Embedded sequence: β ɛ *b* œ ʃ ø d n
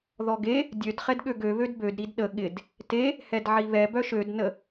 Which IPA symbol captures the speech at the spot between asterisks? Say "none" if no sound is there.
b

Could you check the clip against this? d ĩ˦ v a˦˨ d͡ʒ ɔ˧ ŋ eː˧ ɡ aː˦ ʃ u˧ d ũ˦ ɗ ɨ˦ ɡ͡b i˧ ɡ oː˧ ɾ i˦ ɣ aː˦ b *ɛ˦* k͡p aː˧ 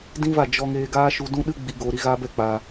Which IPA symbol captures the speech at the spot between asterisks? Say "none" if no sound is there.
ɛ˦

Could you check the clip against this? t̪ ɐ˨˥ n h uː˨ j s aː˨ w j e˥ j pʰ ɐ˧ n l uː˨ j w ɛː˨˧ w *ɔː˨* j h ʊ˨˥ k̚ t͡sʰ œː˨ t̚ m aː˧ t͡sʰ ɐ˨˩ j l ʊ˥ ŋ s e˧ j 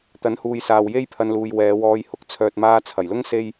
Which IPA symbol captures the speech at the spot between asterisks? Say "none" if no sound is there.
ɔː˧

